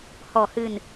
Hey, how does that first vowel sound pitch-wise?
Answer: low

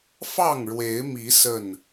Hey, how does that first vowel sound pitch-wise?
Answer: falling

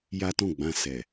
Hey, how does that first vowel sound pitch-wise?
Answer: high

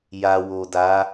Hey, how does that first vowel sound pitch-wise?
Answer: low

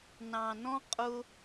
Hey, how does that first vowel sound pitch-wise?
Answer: low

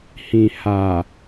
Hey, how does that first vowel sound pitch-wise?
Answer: low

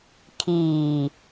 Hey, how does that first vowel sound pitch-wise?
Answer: low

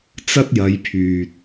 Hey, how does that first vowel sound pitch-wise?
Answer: high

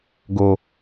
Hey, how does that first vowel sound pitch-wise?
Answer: high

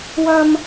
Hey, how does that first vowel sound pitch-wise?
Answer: low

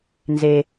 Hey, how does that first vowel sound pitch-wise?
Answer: low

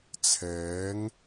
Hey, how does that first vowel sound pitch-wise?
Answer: rising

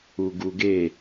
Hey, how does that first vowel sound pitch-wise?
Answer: low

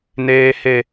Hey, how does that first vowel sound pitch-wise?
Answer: high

